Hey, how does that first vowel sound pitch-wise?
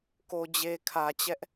low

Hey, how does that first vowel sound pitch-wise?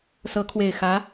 rising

